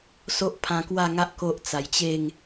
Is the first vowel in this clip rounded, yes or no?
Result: yes